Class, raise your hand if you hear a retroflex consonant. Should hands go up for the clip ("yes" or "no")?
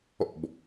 no